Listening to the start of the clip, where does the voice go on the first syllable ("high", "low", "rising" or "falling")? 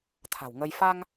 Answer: low